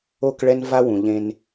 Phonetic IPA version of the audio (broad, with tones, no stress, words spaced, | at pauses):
o˦˨kɭɛ˦nva˦wũ˨ ʎẽ˦n